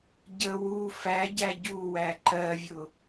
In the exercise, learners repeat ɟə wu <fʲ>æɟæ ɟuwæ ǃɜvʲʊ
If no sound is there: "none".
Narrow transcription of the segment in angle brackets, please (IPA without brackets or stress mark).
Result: f